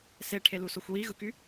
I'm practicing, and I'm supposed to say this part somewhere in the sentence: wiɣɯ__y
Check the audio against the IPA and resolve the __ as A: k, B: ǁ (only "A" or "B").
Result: A